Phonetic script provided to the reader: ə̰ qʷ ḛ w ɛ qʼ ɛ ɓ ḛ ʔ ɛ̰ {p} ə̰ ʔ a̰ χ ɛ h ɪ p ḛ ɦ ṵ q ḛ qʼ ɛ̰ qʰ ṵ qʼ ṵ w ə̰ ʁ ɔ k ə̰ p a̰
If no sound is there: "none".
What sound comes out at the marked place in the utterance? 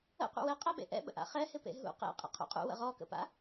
ɓ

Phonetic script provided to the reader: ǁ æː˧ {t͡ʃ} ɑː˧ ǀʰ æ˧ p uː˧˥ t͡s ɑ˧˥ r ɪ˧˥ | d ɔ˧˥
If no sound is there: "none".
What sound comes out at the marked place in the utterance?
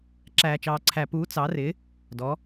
t͡ʃ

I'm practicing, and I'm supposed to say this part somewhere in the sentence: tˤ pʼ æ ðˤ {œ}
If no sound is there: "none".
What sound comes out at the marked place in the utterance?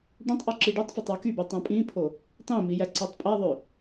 ø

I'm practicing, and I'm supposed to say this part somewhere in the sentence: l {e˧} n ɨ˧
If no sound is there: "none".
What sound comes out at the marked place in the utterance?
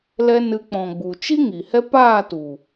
ɛ˧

